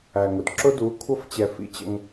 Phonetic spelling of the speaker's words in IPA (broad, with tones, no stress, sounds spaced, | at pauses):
æ˨ ŋ ʊ˨ d ǁ ʊ˦ d u˨˦ kʷʰ ʌ˦ f t͡ɕ ɛ˨ f ḭ˦ t͡ɕ ə̰˦ ŋ